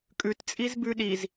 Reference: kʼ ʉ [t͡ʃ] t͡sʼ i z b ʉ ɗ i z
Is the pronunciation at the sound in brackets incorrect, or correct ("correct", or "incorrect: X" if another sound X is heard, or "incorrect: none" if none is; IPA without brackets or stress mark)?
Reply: incorrect: t